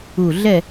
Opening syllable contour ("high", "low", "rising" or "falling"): low